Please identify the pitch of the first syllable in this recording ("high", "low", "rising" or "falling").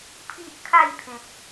high